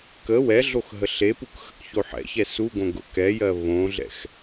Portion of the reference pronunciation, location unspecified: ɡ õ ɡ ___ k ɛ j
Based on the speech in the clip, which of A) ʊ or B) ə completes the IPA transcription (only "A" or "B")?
A